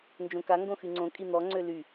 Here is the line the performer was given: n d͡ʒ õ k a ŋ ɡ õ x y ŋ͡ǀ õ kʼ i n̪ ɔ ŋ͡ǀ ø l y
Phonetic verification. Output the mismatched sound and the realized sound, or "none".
none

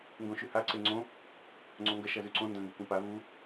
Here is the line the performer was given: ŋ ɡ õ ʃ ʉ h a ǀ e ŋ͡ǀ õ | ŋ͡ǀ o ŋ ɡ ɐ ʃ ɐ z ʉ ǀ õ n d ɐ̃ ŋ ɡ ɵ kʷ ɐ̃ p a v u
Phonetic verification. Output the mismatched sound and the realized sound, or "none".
none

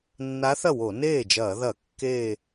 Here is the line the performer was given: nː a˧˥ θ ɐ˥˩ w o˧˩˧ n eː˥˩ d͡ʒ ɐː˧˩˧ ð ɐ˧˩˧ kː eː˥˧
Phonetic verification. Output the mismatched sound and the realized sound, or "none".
none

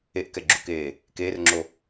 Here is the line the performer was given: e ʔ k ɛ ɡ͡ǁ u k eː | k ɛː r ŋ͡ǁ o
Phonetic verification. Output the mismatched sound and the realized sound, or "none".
ɛː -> eː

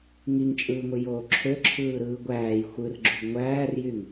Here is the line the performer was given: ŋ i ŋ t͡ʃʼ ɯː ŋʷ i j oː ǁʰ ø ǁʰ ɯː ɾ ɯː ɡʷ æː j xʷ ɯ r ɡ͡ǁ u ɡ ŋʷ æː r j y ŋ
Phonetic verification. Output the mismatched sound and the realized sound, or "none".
none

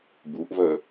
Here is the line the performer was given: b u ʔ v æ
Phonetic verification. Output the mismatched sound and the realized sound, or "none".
æ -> ɜ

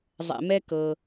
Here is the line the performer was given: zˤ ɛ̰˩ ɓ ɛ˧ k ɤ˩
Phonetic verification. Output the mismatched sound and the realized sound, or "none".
ɓ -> m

